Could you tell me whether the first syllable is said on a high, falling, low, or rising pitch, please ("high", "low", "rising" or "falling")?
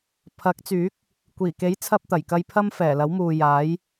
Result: rising